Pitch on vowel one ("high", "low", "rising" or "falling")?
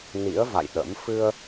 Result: rising